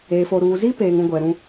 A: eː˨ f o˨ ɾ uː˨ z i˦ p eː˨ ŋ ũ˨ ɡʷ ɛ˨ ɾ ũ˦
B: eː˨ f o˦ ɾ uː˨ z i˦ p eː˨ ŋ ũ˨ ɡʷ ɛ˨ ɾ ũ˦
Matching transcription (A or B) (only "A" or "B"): A